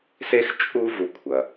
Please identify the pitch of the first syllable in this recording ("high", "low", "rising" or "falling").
high